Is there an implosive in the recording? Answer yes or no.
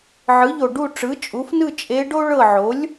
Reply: no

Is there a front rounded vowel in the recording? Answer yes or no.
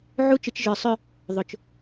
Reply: yes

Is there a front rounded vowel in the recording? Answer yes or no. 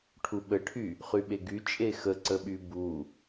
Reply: yes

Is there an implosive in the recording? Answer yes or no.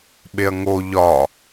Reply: yes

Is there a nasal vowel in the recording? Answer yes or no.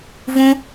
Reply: yes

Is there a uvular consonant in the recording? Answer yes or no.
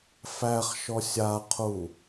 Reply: yes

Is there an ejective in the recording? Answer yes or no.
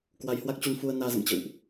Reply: no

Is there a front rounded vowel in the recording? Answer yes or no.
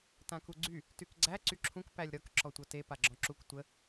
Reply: yes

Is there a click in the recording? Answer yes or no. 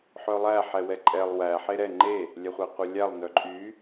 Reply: yes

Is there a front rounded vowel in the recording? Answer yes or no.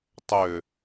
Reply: yes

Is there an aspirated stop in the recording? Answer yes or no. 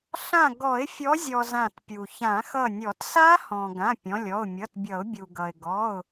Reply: no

